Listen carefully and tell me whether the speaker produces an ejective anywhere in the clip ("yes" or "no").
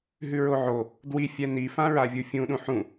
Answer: no